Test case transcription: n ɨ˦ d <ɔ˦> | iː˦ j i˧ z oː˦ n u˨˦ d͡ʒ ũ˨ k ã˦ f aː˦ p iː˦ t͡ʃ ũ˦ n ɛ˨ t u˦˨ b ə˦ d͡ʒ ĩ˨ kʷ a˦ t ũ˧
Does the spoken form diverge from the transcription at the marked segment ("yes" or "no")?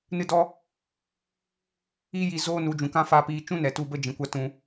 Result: no